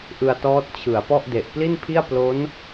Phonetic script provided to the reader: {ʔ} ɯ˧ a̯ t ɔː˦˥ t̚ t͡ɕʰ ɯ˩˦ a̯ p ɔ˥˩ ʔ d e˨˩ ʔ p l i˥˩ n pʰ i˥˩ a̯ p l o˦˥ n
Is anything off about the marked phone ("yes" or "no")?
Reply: no